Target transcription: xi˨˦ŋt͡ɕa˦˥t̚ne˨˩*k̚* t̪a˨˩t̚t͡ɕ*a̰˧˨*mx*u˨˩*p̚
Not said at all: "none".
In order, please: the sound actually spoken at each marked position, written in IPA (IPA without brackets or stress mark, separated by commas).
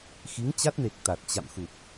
k̚, a̰˧˨, u˨˩